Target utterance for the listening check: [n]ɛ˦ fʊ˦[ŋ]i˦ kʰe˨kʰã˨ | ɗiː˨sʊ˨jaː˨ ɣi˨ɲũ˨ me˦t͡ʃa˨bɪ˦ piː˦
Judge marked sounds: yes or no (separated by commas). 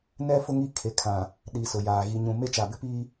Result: yes, yes